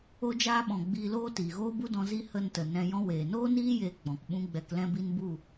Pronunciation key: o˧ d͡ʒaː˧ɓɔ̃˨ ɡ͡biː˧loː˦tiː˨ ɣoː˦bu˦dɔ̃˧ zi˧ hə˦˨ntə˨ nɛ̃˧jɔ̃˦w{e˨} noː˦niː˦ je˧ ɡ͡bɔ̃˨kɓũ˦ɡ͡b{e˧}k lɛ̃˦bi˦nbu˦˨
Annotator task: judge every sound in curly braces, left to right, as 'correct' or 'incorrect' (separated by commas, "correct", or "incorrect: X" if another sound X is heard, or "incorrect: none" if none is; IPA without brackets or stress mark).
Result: incorrect: eː˨, incorrect: ɛ˧